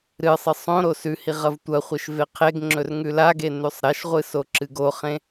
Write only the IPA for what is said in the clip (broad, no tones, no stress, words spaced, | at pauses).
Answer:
ɾɨsˤɨ sˤõɾo sʉhi ʁɐvtʷɐχʷeʃ veqʰeɡŋ͡ǁɵr ŋʉlaɡe nʉsˤɾɐʃʁʷɨ soǁɨɡoχẽ